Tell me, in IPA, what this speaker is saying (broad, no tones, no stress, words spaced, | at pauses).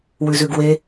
wʉzʉɡwe